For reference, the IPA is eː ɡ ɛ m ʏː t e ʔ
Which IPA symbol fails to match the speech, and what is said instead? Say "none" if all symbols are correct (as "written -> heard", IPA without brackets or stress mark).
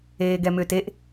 none